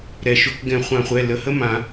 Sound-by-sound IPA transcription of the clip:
ɾɛ˩ʃɵ˩˥k ɡɛ̃˨˩˦χʷã˨˩˦χʷɛ˩˧˩ lə˩˧˩hə˦˥mã˨˩˦

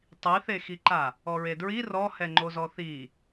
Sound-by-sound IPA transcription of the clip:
tˤiθexiǃa | ɔɹedɹi rɔhɛŋ͡ǃozɔ θi

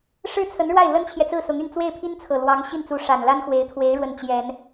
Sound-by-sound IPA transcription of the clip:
ʂɻ̩˥t͡sʰə˧˥n ɻwa˥˩ɪ̯lə˥nt͡ɕʰjɛ˨t͡sɹ̩˥˩ sʊ˧˥ŋy˥˧n t͡swe˥˩ɪ̯pʰi˥nt͡sʰɤ˨˩lwɑ˧˥ŋ ɕi˥˩nt͡su˧˥ ʂa˨˩nla˥nxwe˧˥ɪ̯t̪ʰwe˧˥ɪ̯ ɻwə˥˩nt͡ɕjɛ˨˩˦n

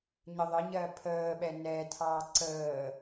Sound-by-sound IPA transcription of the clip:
ɲəðˤəɲɜ pʰəːɓɛ nɛtʰɑː ǀəː

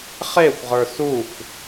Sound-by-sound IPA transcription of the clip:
χexʷʁə˞ suxʷ

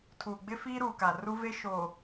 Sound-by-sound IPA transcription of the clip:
tʰuː˨ɡ͡bɪ˦fiː˦ ɾuː˨ka˨ru˦ve˦ ʃo˨

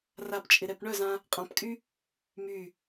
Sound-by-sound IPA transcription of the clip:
rapt͡ʃʼɪɾɛp ɳœzã | qʼãpkʼy | my

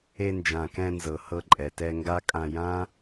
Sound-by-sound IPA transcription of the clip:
e˧nd͡ʒã˨kɛ̃˧nzɤ˨ hɤ˧ǃʼɛ˨tɛ˧ŋɡa˦ kʼã˧jã˦

